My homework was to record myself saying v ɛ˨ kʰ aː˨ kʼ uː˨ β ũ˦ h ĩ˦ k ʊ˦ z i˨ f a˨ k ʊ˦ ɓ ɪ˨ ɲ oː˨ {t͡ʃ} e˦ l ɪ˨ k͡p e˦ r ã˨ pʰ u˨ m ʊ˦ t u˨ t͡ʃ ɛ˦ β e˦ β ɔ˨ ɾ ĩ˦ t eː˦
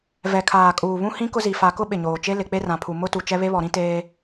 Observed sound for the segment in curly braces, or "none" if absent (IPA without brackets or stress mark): t͡ʃ